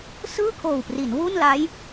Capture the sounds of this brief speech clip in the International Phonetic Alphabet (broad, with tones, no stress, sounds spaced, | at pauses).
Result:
s ɯː˥˩ kʰ oː˨˩ w p r i˩˦ n w u˥˩ n l a˦˥ j